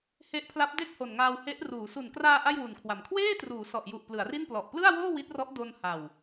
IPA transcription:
h e˦˥ ʔ pʰ l a˦˥ p̚ d e˥˩ k̚ h o˨˩ n ŋ aː˧ w h e˦˥ ʔ r uː˩˦ s u˨˩ n k r aː˧ ʔ a˥˩ j w u˨˩ n kʰ w a˨˩ m kʰ w eː˥˩ t r uː˩˦ s ɔ˨˩ ʔ j u˨˩ ʔ p l ɯ˩˦ a̯ r i˥˩ n p l ɔ˨˩ ʔ p l ɯ˥˩ a̯ w oː˥˩ w i˦˥ t̚ r ɔ˦˥ ʔ d o˧ n h a˨˩ w

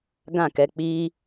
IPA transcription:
ɡ ã˦˨ k ɛ˧ k͡p iː˦

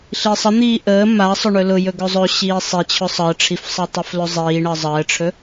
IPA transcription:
ɬ i sˤ ə n̪ iː ʔ əː m a ɐ̯ sˤ ɵ ɳ ɵ l ʊ j ɵ ɡ ɵ zˤ ɵ ɕ iː sˤ i t͡ɕʰ ʊ sˤ əː ʈ͡ʂʰ i f sˤ əː tˤ ʊ f l ɵ zˤ iː ɳ əː zˤ əː ʈ͡ʂʰ ɵ

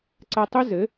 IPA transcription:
ǀ a˦ tˤ u˦ z ɘ˨˦

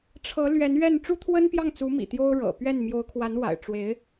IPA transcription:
ʈ͡ʂʰ ɤ˧˥ l ɥ ɛ˧˥ n ɥ ɛ˥˩ n ʈ͡ʂ u˥ t̪ʰ w ə˥ n p j ɑ˥˩ ŋ t͡s u˧˥ m ḭ˨˩ t̪ j o˥ ʊ̯ ɻ ɤ̰˨˩ p ɥ ɛ˥˩ n m j o˧˥ ʊ̯ kʰ w a˧˥ n w a̰˨˩ ɪ̯ ʈ͡ʂ w e˧˥ ɪ̯

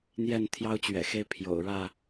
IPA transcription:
n̪ j ɛ˥˨ n t̪ʰ j ɑ˦ ʊ̯ t͡ɕ ɥ ɛ̰˨˩ x e˦ ɪ̯ pʰ j o̰˨˩ ʊ̯ ɻ ä˥˨

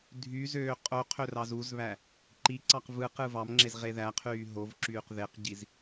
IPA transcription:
dʱ y z øː qʼ o qʰ ø r ɑ z u z β æ | ǃ i ǀ ɑ q v ɯ q ɯ v ɑ m ŋ͡ǁ e z ʁ e ð æ qʰ yː ɦ o v ǁ yː q ð e q ɟ i z

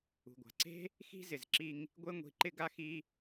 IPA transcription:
ṳ˨ ɡʷ a̤˨ ǀ e̤˦ | x i̤˦ z ɪ˨ z ǁ i˧ ŋ | ɡʷ e˦ ŋʷ i̤˧ ǃ ɪ˦ ɡ a˦ x i˦

